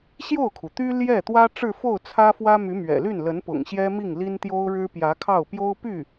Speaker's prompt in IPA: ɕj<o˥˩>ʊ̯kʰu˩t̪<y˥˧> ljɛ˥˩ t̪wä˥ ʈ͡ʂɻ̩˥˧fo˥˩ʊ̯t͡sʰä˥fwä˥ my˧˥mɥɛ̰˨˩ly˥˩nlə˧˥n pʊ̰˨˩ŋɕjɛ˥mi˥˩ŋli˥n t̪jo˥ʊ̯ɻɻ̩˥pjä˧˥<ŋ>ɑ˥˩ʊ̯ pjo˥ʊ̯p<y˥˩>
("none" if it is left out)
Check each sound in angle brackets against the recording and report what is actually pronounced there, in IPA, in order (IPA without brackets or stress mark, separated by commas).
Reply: o˥˩, y˥, kʰ, y˥˩